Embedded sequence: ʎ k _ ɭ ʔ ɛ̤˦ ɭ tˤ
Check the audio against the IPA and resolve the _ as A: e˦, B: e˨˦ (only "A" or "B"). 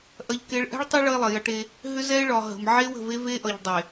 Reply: A